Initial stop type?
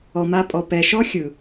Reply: ejective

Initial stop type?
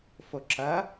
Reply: click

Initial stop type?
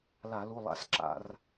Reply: click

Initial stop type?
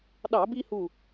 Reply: implosive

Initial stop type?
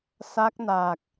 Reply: plain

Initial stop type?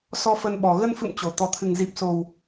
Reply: implosive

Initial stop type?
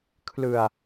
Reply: aspirated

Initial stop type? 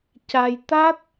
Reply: plain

